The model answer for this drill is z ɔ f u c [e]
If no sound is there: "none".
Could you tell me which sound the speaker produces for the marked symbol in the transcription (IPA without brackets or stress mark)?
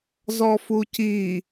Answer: i